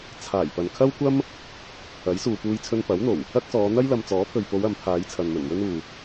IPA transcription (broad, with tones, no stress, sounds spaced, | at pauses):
t͡sʰ aː˨˩ j p ɐ˨ n kʰ ɐ˥ w kʷ ɐ˥ m | ɐ˨˥ j s uː˨ p uː˧ j t͡sʰ ɵ˧ n p ɐ˨˥ w n̪ o˨˩ w | ɐ˥ k̚ s ɔː˨˧ n̪ ɐ˥ j l ɐ˧ m t͡s ɔː˨˥ pʰ ɵ˨ ɥ p o˨˧ w ɐ˨˧ m pʰ aː˨˧ j t͡sʰ ɐ˨ n m ɵ˨˩ n w ɵ˥ n uː˨